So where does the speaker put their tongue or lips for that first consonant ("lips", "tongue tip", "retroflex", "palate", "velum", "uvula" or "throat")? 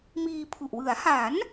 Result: lips